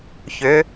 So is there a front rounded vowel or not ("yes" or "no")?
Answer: yes